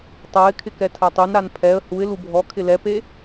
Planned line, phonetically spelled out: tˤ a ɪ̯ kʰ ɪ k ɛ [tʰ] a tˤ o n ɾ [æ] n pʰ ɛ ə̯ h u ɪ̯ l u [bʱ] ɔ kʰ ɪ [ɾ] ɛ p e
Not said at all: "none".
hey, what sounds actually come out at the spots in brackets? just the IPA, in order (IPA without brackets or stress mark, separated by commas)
tʰ, a, bʱ, l